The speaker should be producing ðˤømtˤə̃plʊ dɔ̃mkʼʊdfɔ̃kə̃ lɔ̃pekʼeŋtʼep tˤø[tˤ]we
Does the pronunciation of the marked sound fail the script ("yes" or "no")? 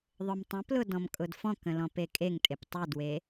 yes